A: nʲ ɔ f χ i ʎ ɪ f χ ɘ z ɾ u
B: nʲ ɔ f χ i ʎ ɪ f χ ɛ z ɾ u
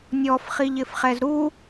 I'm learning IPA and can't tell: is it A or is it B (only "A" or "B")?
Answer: B